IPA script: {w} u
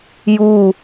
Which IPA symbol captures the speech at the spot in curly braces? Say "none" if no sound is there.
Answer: j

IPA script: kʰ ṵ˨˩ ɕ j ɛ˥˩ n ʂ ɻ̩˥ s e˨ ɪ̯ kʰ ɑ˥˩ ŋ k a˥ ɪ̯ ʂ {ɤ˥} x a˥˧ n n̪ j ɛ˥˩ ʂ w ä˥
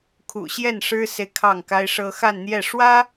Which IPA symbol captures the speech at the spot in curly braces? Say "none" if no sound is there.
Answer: ɤ˥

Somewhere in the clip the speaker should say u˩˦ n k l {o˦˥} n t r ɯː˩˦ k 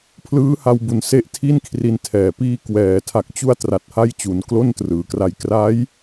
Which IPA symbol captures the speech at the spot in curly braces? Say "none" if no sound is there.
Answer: o˥˩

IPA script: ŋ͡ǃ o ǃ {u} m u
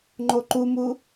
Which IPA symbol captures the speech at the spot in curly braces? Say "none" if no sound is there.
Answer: u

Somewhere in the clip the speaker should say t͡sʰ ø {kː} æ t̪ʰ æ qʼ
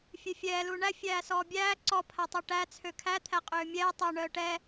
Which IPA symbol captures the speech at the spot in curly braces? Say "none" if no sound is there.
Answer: kʰ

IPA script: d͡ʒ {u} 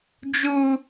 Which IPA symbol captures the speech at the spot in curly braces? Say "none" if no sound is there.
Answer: u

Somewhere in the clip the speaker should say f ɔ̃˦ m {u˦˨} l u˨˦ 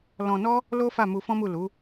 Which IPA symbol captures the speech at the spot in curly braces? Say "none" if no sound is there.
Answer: u˦˨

